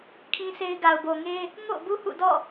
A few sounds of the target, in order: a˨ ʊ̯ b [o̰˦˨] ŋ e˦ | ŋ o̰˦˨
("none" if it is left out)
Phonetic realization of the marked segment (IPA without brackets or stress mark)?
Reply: o˨